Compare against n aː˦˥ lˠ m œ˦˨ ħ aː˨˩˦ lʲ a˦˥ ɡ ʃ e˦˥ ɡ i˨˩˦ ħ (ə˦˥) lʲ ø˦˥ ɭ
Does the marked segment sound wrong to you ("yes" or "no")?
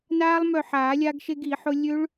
yes